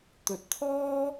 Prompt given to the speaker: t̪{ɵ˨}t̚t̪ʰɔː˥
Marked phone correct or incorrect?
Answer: correct